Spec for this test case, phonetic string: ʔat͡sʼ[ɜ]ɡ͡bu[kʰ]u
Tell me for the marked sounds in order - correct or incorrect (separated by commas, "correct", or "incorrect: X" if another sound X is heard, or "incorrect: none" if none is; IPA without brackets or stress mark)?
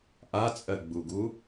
correct, incorrect: ɡ